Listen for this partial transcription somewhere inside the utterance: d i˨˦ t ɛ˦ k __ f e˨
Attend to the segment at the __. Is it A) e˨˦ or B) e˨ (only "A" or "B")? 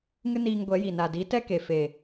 B